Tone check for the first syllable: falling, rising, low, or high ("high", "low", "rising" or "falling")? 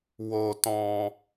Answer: high